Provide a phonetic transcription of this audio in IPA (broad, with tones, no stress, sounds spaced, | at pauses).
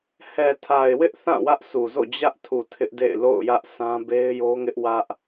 h ɛ˨ tʰ a˨ ɪ̯ w ɪ˦ ʔ θ ã˦˨ w ä˦ ʔ s u˨ z o̰˦˨ d͡ʑ ä˦ ʔ tʰ u˨ tʰ ɪ˦ ʔ d ḛ˦˨ ɪ̯ l o̰˦˨ ʊ̯ j ä˦ ʔ s ã˦ b e˦ ɪ̯ j o˦ ŋ ɪ˦ ʔ w ä˦ ʔ